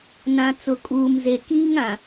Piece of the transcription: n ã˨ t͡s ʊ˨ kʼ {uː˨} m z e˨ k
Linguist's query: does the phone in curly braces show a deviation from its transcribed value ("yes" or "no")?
no